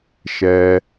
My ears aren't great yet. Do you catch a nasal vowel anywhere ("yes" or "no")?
no